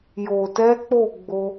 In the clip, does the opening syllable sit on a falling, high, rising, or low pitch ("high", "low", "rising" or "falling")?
low